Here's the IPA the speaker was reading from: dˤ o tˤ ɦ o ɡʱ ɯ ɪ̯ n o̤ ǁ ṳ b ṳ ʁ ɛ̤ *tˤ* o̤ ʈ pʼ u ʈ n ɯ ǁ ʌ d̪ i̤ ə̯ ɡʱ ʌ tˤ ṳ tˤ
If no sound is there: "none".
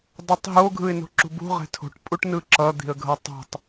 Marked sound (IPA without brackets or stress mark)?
tʰ